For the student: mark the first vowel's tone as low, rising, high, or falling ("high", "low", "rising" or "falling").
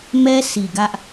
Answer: high